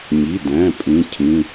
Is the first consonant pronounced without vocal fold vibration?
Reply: no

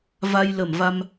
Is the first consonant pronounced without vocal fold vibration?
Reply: no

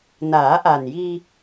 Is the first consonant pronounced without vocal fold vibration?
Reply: no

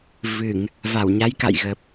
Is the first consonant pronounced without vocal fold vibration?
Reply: no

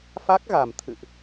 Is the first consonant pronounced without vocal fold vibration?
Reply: yes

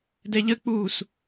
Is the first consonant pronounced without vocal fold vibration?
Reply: no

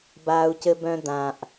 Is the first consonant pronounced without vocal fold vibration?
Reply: no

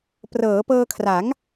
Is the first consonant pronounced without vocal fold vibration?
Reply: yes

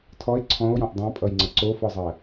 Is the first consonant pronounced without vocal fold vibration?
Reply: yes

